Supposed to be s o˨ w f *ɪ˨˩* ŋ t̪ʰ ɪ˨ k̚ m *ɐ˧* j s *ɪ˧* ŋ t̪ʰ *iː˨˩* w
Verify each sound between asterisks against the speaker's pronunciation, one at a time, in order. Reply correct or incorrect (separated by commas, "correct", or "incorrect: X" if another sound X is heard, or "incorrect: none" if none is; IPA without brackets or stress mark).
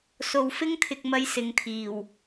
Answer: incorrect: ɪ˥, incorrect: ɐ˥, incorrect: ɪ˨˥, correct